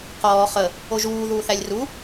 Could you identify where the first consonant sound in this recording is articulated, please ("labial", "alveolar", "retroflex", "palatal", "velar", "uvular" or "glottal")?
uvular